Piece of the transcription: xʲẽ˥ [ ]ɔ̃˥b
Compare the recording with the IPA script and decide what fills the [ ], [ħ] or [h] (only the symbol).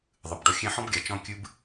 ħ